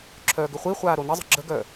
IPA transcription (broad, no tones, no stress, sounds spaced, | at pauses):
ǁʰ œː ɡ ʏ χʷ i χʷ aː ɾ o n ɪ zˤ ə̤ ɡ͡ǁ ə ɡ œ